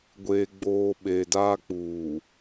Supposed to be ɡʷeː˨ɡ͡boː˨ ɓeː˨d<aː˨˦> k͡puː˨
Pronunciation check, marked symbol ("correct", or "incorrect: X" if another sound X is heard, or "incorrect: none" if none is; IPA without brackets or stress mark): incorrect: aː˦